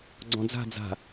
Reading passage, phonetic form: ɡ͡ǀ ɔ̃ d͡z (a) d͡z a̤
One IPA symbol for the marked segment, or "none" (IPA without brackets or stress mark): a̤